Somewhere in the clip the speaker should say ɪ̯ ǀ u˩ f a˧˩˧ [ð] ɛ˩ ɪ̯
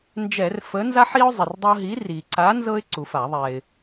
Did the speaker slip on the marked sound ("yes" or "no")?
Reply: yes